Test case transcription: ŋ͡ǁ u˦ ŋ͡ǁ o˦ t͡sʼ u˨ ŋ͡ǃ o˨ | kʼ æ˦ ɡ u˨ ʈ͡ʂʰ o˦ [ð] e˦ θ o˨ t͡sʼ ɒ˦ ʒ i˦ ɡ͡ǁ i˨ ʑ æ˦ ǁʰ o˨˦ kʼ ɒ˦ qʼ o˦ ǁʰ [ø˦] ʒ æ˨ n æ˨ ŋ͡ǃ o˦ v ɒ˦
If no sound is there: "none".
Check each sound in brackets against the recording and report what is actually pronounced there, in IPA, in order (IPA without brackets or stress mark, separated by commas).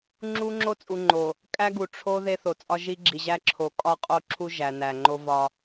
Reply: ð, u˦